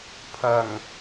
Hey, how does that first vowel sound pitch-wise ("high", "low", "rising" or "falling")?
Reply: low